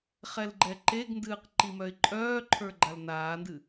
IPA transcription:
χ ɛ l ɡ͡ǃ ɛ ǃ e ɡ n d ɨː q ǃ i m œ ɪ̯ ǃʼ œː ǃʰ ə˞ ɡ͡ǃ a l n aː n d ɨ

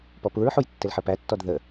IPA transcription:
p ɔ p u ɹ ħ u j tː ɪ l ħ ə p æ tː ɔ d ð ə

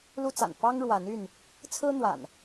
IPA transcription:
l u˦ t͡s a̰˨˩ n p ɑ˦ ŋ ɻ w a˨˦ n y˥˨ n | t͡sʰ ɹ̩˦ n̪ w a̰˨˩ n

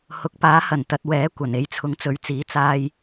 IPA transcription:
h ʊ˨˥ k̚ p aː˨˥ h ɐ˨˩ n t̪ ɐ˨ t̚ w ɛː˨˥ kʷ ɐ˨˩ n e˨˥ j t͡sʰ ʊ˨˥ ŋ t͡s ɵ˨ ɥ t͡s iː˨˥ t͡s aː˧ j

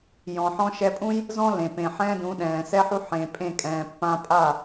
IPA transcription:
j ɔ̃˨ ħ ɔ̃˧ ʃ ɛ˧ pʼ ũ˦ j | z ɔ̃˦ l ẽ˨ p ẽ˨ ħ ɛ̃ː˦ d ũ˨˦ ɗ ɛ̃ː˨ s ɛ˦ ħ u˦ ħ ẽ˧ pʼ ẽ˦˨ kʼ ɛ̃ː˨ pː ã˦ pʼ a˦˨

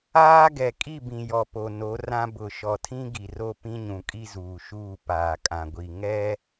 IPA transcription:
aː˦ ɡ ɛ˨ kʼ i˦˨ b ĩ˨ j ɔ˨ p o˨ n o˨˦ r ã˦ b ʊ˨ ʃ ɔ˨ tʰ ĩ˦ ɡ i˨ r o˦ p ĩ˦ ɲ ũ˨ kʼ i˦ z uː˨ ʃ uː˦˨ p aː˨ kʼ ã˨ ɡʷ i˨ ŋ ɛ˦

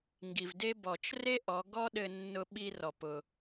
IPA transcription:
ŋ ɡ i˩ v d e˥ b ɔ˩ t͡ʃ r e˥ ʔ ɔ˩˧ ɡ ɔ˥ ɗ ɘ˧ nː ʊ˧ ɓ i˧ r ɔ˩ p ʊ˩

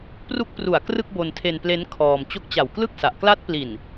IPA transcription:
p r u˦˥ k̚ p r u˨˩ a̯ k r ɯ˥˩ k̚ b o˧ n tʰ e˧ n p l e˦˥ n kʰ ɔː˧ m t͡ɕ o˦˥ k̚ t͡ɕ a˨˩ w k l ɯ˥˩ k̚ s a˨˩ ʔ k l a˦˥ t̚ p l i˨˩ n

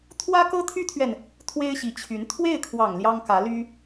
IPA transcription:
t̪ʰ w ä˥ k ɤ˥ t̪ʰ y˥ t̪ʰ ɥ ɛ˨ n | t̪ʰ w e˥ ɪ̯ ɕ i˧˥ t͡ɕʰ y˧˥ n t̪ʰ w e˥˩ ɪ̯ kʰ w ɑ˨˩ ŋ l j ɑ˥ ŋ k ä˧˥ l y˥

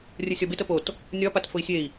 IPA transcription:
rʲ ə sʲ ɒ b e t ə p o t | nʲ ɒ p a t f ʊ i̯ sʲ e i̯

